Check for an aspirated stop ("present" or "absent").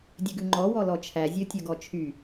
present